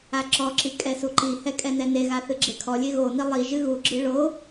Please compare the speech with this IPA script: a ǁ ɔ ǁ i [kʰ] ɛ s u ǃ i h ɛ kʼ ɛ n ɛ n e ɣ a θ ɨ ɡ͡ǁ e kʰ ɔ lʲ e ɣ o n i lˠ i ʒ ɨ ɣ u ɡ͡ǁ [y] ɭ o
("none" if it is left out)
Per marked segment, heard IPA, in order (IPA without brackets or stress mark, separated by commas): kʼ, ɨ